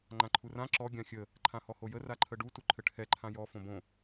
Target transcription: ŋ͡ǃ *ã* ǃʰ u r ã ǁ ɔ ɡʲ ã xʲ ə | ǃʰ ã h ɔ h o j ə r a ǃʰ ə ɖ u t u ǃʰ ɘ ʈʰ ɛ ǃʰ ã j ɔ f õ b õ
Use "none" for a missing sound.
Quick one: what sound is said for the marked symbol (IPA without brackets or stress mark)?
ã